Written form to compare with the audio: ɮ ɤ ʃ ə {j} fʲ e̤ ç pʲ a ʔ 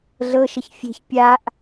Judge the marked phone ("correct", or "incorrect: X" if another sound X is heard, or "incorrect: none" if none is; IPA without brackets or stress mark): incorrect: ç